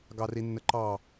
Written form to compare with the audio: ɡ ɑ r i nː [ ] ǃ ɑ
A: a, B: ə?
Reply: B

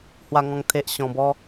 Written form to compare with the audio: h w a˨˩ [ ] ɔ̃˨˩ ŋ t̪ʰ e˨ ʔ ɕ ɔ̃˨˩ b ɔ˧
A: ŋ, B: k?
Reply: A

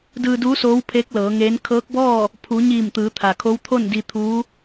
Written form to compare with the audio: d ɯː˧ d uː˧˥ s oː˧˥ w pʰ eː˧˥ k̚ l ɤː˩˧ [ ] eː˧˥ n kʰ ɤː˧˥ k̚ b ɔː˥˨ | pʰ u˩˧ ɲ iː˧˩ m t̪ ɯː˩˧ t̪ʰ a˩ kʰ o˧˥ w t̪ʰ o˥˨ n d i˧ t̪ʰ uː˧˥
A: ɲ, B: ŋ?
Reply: B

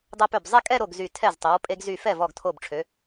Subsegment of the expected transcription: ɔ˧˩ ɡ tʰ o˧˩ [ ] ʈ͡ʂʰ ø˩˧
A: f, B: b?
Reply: B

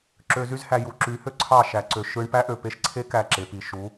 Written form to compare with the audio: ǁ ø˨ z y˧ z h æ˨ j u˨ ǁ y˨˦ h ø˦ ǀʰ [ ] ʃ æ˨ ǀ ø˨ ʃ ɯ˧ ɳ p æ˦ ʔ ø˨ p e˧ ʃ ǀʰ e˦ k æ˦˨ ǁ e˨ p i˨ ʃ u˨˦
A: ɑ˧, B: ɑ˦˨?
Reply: B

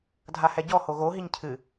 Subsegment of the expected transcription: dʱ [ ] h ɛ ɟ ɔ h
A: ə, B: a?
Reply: B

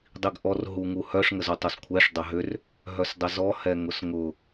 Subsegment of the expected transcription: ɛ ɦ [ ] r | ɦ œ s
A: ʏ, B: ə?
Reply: A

